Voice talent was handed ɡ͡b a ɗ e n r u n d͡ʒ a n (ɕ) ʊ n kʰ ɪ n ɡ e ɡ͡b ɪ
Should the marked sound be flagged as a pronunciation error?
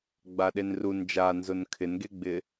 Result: yes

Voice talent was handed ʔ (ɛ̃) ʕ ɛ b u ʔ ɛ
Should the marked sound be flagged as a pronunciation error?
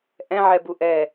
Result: no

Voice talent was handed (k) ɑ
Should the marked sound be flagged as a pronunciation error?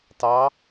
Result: yes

